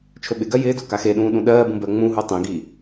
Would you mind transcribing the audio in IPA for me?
t͡ʃʰɵɓɪɡɜ jɪːdo kaxeɗũː ɗũɗɜːbũ bɜŋ͡mũɦu tˤĩɡi

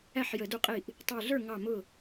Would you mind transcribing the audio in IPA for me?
æ˥˩ħjə˧˩˧du˧˩qʼi˧˩ʔ | tˤə˞˧˩ɮə˞˥˩ ŋɑ˧˩mʊ˧˩

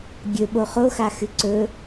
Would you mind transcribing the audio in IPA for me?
ɡʲɵɓo χoxaxɨ ǀɵ

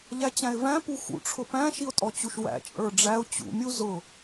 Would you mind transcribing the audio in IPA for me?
ʎæt͡ɕæ̃ɪ̯væ̃ puxṵʈ͡ʂʰʊ pæ̃ʃiʊ̯ tʼɔt͡ɕuʃwæ̰ t͡ʃʼə˞ɖ͡ʐæʊ̯ t͡ɕṵmʲu zʊ

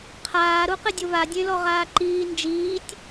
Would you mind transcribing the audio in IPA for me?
qʰaːɾuqɪ dʲʊβadʲẽlɔ ʁaːǃiː nd͡ʒiːtʲ

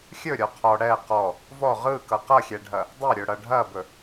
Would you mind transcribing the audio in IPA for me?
xʲɵ ɾʲɔqʰɔ ɽɛ qɔ | vɔ ʁɯkʌ qʌxʲɛɖʱɐ | dˤɐɾʲɵ ɽʌɖʱɐbɵ

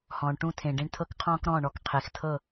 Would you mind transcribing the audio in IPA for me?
hɔ̃ː˨ɳʈũ˦˨tʰẽ˨ ɖẽ˦ɳtʰɤ˦kqʰɔ̃ː˦k ɾɔ̃ː˦˨ɳɔ˨kqʰe˨xtʰɤ˦˨

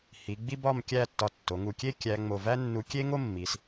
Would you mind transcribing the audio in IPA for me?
hi˩˧ ɡ͡bi˥ bɒ˥˧mkʲæ˥˧tːɒ˧ tːo˩˧ŋu˧˩kʲe˥˧ kʲæ˧ ŋ͡mo˧˩væ˥ nːu˧kʲe˥ ŋo˥mːi˩˧s

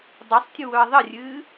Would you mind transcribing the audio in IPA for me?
dˤɛsˤtʲuwɵɐ̯ ðˤərʲɨː

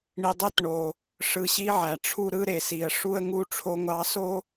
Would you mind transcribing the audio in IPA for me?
ɳi˨dˤe˦t ɳo˨ | ʂɯ˨ɕi˧ ʕæ˨ʈ͡ʂʰu˦ ɾɯ˦ ɾe˨si˨ə̯ ʂu˦ə̯ŋu˦ ʈ͡ʂʰo˧ŋʷɑ˧so˦

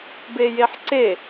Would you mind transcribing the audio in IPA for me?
bejeħǀe

